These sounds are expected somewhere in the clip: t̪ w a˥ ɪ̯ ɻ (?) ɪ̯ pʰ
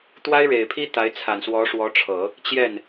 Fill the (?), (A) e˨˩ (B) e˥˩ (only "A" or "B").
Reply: A